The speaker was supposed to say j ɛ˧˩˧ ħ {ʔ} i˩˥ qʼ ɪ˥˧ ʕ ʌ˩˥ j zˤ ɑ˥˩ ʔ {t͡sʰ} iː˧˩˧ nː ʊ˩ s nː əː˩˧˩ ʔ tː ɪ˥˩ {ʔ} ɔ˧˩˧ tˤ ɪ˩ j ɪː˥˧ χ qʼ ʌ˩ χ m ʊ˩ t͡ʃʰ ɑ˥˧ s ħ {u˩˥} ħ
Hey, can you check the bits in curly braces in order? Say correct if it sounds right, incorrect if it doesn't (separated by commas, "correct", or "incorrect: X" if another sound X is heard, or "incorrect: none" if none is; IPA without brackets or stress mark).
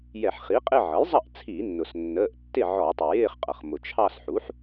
incorrect: χ, correct, incorrect: ʕ, correct